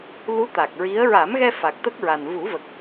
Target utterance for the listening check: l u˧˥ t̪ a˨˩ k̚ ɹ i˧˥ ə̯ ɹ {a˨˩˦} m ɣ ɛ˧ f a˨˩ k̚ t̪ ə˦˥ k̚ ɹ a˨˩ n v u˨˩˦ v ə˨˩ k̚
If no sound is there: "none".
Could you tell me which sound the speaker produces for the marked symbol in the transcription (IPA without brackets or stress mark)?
a˨˩˦